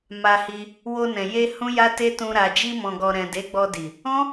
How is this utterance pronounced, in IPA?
m a˧ h i˧ | w o˧ n ɛ̃˨ j e˧ h ũ˦ j a˦ t e˦ t ũ˧ ɾ a˨ d͡ʒ i˧ m ɔ̃˨ ɡ ɔ˨ ɾ ɛ̃˨ d e˨˦ ɡ͡b ɔ˧ d i˨ | ɔ̃˦

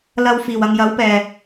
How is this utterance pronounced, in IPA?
l ɐ˧ w f iː˨˩ w ɐ˨ ŋ j ɐ˨˥ w p ɛː˨˩

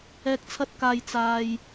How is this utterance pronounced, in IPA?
ɛː˨ k̚ t͡sʰ ɐ˧ t̚ k aː˨ j t͡s aː˨ j

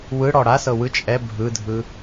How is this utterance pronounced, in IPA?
w ɯ ɽ ɔ ɽ a s ɤ w ɯ t͡ʃʼ ɛ bʱ ɯ dʱ ɯ

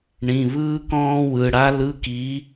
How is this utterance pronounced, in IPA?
ɳ ĩ˩˧˩ β ɯː˥ k ɔ̃ː˥ w ɯ˩˧˩ ɽ a˥ l ɯ˧˥˧ k i˨˥

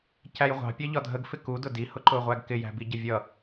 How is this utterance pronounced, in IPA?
c æ j ʁʷ ɑ̤ pʲ ɑ ʎ ɒ dʱ ə ɡ f ɪ k u d ʊ d i h ʊ ǃ ʊː ʁʷ æ ɡ k ɪ j æ̤ b i ɟ ə vʲ ʌ

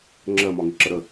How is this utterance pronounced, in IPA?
ŋ͡ǁ ɜ m ɒ ŋ i ǁ ə ɾ ə

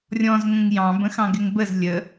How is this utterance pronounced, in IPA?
rʲ ɔ̃ z ŋ ə̃ ŋ j ɑ̃ b ə̃ x ɑ̃ ɡ ɪ ŋ b ə z lʲ ə

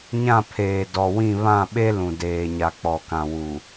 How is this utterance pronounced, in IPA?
ɲ ã˦˨ pʰ eː˨ d ɔ˨ w ĩ˦˨ β ã˦˨ ɓ e˦ l ũ˨ d eː˨ ɲ a˨ k͡p ɔ˨ k ã˨ w u˨

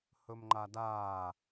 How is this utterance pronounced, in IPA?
h ɵ m ŋ͡ǃ a d aː

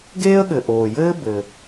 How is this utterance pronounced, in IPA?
ɡ eː˥ ə̯ ɠ ɘ˩ ʔ oː˩ j ɘː˥ b ɘ˩

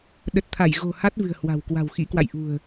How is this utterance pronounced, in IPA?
ɗ ə˨˩ t̚ t̪ʰ a˧˩ j ɣ o̤˨˩ h a˦˥ t̚ v ɨ̤˨˩ ə̯ h w a̤˨˩ w k w a̤˨˩ w x ḭ˧˥ k w a̰˧˨ j ʔ ṳ˨˩ ə̯

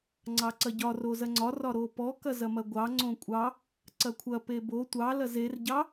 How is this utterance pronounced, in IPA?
ŋ͡ǀ ɑ ǀ ɐ ɟ ɒ r o z ɐ ŋ͡ǀ ɒ r ɒ ɾ o p ɔ k ɐ z ɐ m ɐ ɡʷ ɑ ŋ͡ǀ õ kʷʼ ɑ | ǀ ɐ kʷʰ ɐ p e b o tʷ ɑ l ɐ z e r ɟ ɑ

